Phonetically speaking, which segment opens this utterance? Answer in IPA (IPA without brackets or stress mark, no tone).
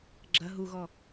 ɡ͡ǁ